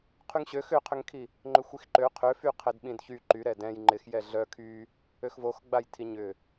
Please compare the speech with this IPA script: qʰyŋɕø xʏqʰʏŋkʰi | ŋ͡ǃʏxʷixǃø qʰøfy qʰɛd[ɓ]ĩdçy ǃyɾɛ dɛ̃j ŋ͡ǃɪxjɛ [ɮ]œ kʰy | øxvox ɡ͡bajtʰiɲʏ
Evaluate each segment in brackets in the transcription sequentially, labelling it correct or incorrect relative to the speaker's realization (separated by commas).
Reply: correct, correct